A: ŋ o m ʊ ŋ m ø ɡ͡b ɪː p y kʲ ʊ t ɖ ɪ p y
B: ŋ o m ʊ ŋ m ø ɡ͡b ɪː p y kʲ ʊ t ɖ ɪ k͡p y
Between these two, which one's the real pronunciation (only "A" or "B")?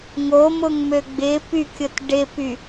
A